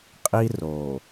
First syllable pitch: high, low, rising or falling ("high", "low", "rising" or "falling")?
high